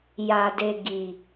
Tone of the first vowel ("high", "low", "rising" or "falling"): low